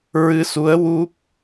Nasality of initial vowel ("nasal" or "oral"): oral